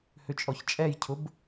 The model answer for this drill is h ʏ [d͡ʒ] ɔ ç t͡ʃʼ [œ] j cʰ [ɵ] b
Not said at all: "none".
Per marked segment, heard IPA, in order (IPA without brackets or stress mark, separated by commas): t͡ʃʼ, ɛ, ʊ